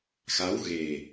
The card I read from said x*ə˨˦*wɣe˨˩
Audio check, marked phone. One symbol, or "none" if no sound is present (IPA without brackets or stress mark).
a˨˦